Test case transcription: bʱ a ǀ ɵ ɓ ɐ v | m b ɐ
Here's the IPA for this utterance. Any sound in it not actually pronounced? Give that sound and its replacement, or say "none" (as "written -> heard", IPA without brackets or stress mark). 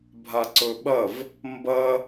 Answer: none